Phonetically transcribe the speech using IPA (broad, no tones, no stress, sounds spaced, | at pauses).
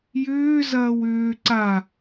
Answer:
j ʏː z ɐː w ʏː ǀ a